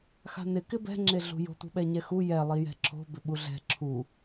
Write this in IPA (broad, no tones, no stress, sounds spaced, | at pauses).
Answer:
x a̤ n ɪ k ɪ b ɛ̤ ŋ͡ǁ e ɮ ṳ j o̤ t̪ ṳ ɓ ɛ ɲ ɛ x u j ɛ lˠ i j ɛ̤ ǁʰ o̤ b ɪ ɓ u ɮ ɛ̤ ǁʰ u